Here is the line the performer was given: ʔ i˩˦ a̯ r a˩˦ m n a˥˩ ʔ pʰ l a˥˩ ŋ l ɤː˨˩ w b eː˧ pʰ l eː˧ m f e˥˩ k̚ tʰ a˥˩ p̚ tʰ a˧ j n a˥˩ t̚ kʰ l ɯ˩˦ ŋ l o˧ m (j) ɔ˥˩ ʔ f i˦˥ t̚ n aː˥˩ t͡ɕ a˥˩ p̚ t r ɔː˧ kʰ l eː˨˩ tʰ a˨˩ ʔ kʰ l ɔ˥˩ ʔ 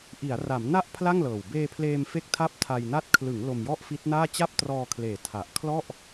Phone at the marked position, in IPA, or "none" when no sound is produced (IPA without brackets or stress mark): j